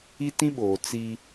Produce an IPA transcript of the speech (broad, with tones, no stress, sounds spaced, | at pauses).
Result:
i˦ t ĩ˦ ɓ oː˨ t͡s i˦